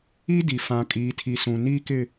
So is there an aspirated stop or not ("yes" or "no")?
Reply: yes